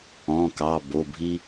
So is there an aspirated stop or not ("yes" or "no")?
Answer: no